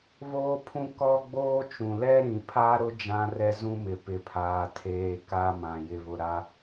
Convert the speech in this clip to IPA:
β oː˦ pʰ ũ˦ k ɔ˦ ɡ͡b oː˦ t͡ʃ ũ˨ l ɛ˦ ɾ ĩ˨ pʰ a˦ ɾ ʊ˦ d͡ʒ ã˦ r ɛ˦ z ũ˦ m ɪ˨ p ɪ˨ pʰ aː˨ tʰ eː˨ k a˦ m ã˨ j ɪ˨ β ʊ˨ ɾ a˦

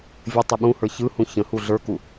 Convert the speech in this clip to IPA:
vʲ ɘ tˤ ʌ ɓ ũ h ə˞ ç ɯ h ũ ç ə̃ h u ɮ ə˞ k u

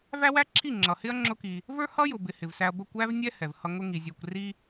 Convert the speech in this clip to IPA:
v æ˦ w æ˦ ǁʰ i˦˨ ŋ͡ǁ ʌ˨ h ɪ˦ ɐ̯ ŋ͡ǁ ʊ˦ k i˧ | v ə˞˦ h ʌ˦ j ʊ˨ b ɪ˨ h ɪ˨ v s æ˧ ɐ̯ b ə˦˨ kʷ æ˦ v nʲ ɛ˦ h ɛ˨ v h ʌ˧ ŋ ʊ˦ ŋ i˨ zʲ æ˧ kʷ r i˦

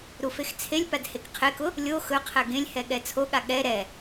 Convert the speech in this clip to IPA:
ɾ u f e x t͡sʰ e lʲ p a d h e k qʰ e k ʊ | lʲ o x ɵ qʰ ɛ ɡ ẽ lʲ h ɛ ɠ ɛ t͡sʰ o ɠ a ɠ ɛ ɾ ɛ

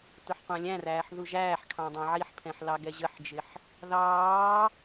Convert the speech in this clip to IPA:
t ʊ ħ qʷ æ̃ lʲ æ̃ r æː ħ ð u ʒ æː ħ kʰ ɑ̃ dˤ æ̃ ʕ i ħ pʰ ɛ̃ ħ l ɑ ɡ ɛ ʑ ə ħ d͡ʒ ɪ ħ | ð ɑː

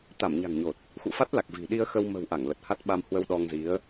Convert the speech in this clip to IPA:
t̪ a˧˩ m ɲ a̤˨˩ ŋ ɲ o˨˩ t̚ | x ṵ˧˨ f a˦˥ t̚ l a˨˩ k̚ v i̤˨˩ ɗ i˧ ə̯ x ə˧ w m ə̤˨˩ w ʔ a˧˩ ŋ l ə˨˩ t̚ h a˦˥ t̚ ɓ a˧ m h w ə˧ w ɗ ɔ˧ ŋ z i˨˦ ə̯

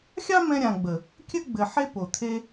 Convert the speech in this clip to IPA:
xʲ ɑ˦ m ɛ̃˧ ɾʲ ã˨ ɡ͡b ə˨ | kʲ ɘ˦ ɡ͡b ɘ˨ ħ e˦ p o˨ t̪ʰ e˦

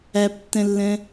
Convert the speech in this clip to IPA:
æ p tː ɛ̃ lː ɛ̃

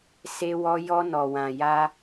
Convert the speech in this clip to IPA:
s e˦ w ɔ˦ j ɔ˦ n ɔ˧ w ã˧ j a˦

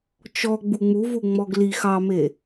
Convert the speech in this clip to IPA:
t͡ʃ ɔ ɡ͡b u ŋ͡m u v u ŋ͡m ɔ ɡ l i x ɑ m e

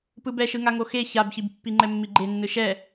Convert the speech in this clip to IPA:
p ɯ b ɛ ʃ ɯ ŋ a ŋ o x e ç a b ç i b pː i ŋ͡ǃ ɛ mː i ɡ͡ǃ e nː ɯ ʃ ɛ

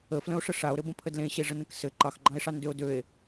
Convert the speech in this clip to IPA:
ə f l ə̃ o̯ ʂ ə ʂ a o̯ ɾ ɘ b ə̃ pʰ ə d l ẽ ɕ e ʐ ə n ə̃ k s ɘ ǃ ɑ x ɡ͡ǃ ɑ̃ e̯ ʂ ɑ n d ø o̯ d ø e̯

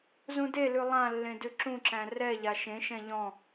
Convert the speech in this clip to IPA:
z ũ d e l ʉ lˠ ã lː ẽ d ʉ ǁ ũ ǁ æ̃ r ɛ ʎ a ʃ ẽ ʃ ɛ̃ ʎ ɔ̃

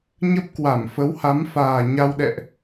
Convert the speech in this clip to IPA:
ɲ ə˦˥ p̚ k w a˧˩ m f ə˨˦ w h a˨˦ m f aː˨˩ ɲ a˧ w ɗ ɛ̰˧˨ ʔ

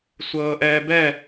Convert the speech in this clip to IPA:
sʷ ɤː ʔ ɛː b ɛ

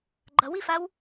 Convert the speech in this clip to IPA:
ɡ͡ǃ ʌ w i f a w

